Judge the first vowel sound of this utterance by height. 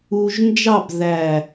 high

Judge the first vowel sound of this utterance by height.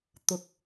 high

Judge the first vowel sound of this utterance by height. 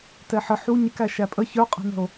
mid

